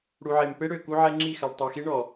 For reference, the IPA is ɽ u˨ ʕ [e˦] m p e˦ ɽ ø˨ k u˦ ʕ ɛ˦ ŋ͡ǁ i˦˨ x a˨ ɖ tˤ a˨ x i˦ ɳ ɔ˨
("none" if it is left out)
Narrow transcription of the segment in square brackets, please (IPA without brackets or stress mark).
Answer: e˨